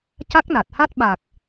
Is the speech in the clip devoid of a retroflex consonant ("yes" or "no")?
yes